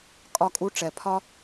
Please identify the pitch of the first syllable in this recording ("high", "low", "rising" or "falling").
high